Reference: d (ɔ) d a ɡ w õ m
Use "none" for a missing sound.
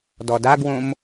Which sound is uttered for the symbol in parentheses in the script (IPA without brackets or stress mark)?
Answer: ɔ